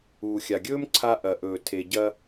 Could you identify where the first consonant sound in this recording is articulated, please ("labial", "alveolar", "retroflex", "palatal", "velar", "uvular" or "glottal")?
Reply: velar